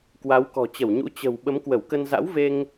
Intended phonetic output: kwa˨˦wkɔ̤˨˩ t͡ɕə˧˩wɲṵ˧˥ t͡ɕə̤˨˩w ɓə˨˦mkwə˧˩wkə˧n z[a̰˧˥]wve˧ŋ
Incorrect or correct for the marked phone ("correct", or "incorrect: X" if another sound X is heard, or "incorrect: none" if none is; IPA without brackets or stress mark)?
correct